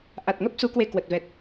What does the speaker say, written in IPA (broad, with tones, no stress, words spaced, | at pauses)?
ʔa˨˩t̚ŋə˦˥p̚su˨˦ kwe˧ kwə˨˩t̚vɛ˨˩t̚